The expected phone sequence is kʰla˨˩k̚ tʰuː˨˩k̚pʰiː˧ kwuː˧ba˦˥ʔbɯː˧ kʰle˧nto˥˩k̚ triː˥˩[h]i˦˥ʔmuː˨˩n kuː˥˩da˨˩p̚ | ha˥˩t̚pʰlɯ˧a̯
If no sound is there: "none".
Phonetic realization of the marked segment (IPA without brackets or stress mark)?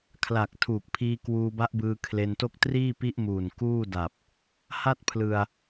p